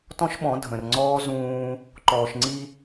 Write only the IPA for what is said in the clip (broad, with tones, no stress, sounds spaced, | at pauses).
t ɔ̃˦ ʃ ɓ ɔ̃˨˦ dʱ ə̃˨ r ŋ͡ǀ ɔː˦ z ũː˦ | ǃ ɔː˨ ʃ ŋ͡ǀ i˦